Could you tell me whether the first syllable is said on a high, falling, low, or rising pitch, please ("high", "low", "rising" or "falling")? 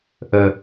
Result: low